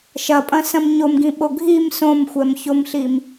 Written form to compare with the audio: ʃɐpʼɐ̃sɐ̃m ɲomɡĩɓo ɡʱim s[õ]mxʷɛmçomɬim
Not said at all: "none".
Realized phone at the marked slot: õ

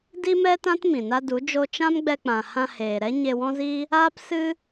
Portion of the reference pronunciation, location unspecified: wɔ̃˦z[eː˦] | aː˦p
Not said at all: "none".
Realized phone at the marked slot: iː˦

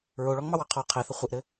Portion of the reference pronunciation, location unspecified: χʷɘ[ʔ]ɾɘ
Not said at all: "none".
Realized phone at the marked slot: ʔ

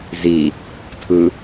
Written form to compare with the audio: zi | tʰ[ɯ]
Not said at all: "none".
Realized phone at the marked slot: ɯ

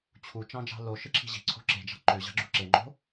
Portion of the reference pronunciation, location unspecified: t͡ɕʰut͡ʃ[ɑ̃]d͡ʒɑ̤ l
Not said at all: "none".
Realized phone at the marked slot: ɑ̃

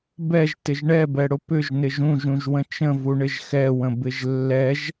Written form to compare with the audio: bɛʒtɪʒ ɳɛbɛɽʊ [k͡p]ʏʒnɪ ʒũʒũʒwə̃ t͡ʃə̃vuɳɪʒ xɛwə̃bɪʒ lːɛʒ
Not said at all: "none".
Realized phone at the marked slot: p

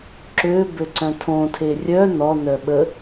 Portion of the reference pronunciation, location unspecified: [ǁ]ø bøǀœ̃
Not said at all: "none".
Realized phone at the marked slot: ǁ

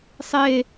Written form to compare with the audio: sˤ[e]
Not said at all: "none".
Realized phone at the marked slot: e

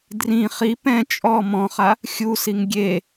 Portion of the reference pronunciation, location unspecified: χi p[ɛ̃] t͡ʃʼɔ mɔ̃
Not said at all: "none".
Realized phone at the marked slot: ɛ̃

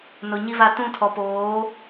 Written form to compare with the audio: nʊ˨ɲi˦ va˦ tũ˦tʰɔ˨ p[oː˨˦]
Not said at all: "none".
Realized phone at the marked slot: oː˨˦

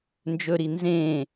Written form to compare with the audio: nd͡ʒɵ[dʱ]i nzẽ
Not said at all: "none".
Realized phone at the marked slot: ɾ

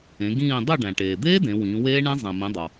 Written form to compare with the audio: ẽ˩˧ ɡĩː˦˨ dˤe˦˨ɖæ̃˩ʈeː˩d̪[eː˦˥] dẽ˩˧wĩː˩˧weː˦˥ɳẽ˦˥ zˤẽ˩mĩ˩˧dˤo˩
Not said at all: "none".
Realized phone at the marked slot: eː˦˥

